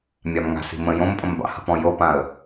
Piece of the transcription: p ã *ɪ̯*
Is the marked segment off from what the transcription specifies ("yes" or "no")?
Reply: yes